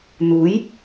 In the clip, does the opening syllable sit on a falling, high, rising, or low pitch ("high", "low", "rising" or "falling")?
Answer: rising